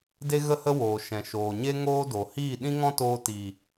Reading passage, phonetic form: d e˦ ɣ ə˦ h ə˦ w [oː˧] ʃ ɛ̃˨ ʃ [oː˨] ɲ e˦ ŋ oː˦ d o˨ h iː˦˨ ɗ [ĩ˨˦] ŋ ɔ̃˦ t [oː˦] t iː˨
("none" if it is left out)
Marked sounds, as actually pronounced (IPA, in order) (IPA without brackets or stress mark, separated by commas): oː˨, oː˨, ĩ˦, oː˧